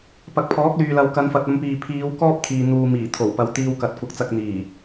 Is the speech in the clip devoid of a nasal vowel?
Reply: yes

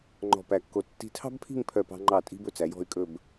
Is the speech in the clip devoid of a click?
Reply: no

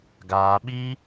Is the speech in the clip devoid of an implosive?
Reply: no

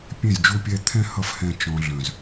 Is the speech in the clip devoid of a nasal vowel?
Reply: no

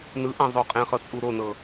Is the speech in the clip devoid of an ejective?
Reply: no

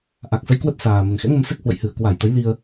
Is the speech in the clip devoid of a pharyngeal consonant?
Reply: yes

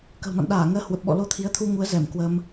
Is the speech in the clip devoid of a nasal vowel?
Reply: yes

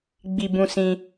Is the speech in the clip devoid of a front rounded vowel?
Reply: yes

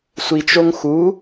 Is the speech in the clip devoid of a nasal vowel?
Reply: yes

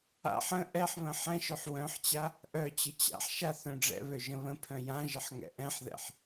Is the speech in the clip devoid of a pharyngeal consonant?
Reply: no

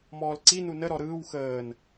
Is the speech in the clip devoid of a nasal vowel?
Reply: yes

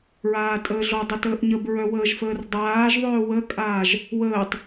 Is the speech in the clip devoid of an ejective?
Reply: no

